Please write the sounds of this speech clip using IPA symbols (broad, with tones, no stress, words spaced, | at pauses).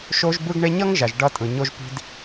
ʃo˦ʒbɯ˦ɡɳe˦ ɲʌ˦ŋʒa˨ʒ ɖʌ˦ tʼɯ˨ɲo˦ʒpi̤˦d